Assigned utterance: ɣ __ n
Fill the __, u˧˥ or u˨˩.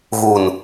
u˨˩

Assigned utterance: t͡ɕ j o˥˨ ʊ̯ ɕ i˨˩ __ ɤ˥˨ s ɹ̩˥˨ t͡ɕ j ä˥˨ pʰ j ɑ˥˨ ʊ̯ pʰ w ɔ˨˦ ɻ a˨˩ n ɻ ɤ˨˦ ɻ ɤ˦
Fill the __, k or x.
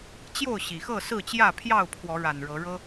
x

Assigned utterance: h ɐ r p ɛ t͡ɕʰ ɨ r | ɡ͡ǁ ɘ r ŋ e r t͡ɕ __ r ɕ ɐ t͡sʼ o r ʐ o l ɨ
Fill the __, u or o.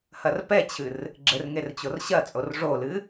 o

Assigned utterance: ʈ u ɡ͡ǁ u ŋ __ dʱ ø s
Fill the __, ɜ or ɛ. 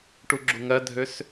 ɜ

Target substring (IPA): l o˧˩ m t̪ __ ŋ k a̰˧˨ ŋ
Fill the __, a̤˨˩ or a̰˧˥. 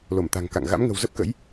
a̤˨˩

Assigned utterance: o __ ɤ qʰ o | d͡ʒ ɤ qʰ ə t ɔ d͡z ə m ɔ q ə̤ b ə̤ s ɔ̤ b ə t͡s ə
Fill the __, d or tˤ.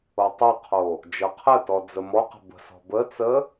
tˤ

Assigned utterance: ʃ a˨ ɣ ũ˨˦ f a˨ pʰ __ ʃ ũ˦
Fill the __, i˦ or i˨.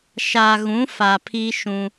i˦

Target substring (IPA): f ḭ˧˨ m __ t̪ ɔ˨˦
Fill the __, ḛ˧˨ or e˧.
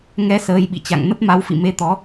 e˧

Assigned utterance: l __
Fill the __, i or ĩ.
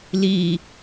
i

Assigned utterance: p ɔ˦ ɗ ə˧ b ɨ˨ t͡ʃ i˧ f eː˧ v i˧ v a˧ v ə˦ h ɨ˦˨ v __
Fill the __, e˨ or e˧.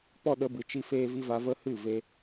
e˧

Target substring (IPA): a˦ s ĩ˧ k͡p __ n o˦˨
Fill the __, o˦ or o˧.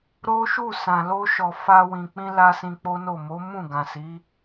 o˦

